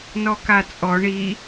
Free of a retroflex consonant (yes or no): no